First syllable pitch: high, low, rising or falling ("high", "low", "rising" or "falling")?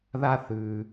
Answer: high